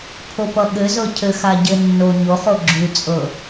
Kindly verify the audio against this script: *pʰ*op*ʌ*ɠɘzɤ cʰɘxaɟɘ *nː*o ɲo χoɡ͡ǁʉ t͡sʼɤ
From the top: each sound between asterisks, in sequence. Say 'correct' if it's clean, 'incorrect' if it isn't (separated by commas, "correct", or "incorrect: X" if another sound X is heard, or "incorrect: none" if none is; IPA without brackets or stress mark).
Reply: correct, correct, correct